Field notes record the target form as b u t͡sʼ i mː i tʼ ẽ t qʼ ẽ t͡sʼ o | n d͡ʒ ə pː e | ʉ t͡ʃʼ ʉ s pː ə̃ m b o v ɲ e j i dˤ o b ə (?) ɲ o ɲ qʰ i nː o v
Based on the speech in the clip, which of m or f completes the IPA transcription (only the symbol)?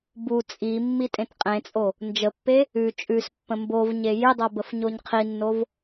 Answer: f